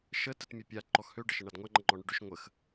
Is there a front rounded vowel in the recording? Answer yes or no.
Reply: yes